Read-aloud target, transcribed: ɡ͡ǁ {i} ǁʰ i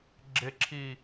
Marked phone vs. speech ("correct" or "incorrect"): incorrect